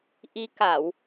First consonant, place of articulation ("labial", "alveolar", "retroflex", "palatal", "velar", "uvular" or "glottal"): glottal